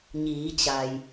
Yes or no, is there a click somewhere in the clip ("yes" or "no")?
no